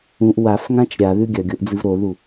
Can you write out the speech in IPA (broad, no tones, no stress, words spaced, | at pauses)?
ũʔ wafŋãt͡ʃ ɾʲaðʉ ɡʲɐɡʲoʔd͡zɨv ɾoðu